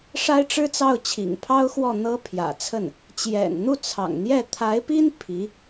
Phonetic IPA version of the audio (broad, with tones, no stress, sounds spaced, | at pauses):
ʂ a˥ ɪ̯ ʈ͡ʂ ɻ̩˥ t͡s ɑ˥˩ ʊ̯ t͡ɕʰ ḭ˨˩ ŋ pʰ ɑ˥ ʊ̯ x w ɔ˥˩ n̪ ɤ˥ pʰ j ä̰˨˩ t͡sʰ ə˥˩ n | t͡ɕ j ɛ̰˨˩ n n̪ u˥˩ t͡sʰ ɑ̰˨˩ ŋ n̪ j ɛ˥˩ t̪ʰ a˧˥ ɪ̯ p i˥ n pʰ i˧˥